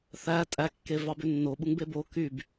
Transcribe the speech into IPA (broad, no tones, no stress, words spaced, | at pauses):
θæ tʼækːe vɑbønːoɓuŋ bebo kyb